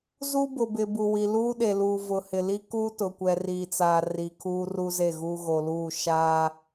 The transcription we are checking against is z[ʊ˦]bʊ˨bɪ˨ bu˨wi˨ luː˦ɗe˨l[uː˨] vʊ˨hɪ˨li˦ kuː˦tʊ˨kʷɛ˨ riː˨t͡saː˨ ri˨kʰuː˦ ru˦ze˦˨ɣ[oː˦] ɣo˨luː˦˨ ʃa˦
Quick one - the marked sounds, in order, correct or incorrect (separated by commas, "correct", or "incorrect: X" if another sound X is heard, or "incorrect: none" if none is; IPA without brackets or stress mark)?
incorrect: u˦, correct, incorrect: uː˦